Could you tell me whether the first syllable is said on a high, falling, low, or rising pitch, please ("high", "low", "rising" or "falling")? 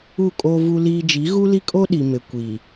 falling